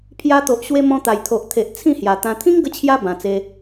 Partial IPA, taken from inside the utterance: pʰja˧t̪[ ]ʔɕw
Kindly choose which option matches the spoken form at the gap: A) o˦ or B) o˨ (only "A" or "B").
B